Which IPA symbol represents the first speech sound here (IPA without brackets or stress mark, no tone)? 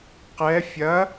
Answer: q